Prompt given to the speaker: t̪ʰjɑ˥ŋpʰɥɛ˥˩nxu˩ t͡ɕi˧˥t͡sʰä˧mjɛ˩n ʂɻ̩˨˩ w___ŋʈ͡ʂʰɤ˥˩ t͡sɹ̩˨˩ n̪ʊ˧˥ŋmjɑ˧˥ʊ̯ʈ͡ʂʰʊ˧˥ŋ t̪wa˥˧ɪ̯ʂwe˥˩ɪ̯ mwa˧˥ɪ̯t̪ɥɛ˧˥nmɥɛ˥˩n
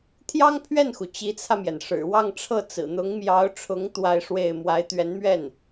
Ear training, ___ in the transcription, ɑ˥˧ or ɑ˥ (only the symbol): ɑ˥˧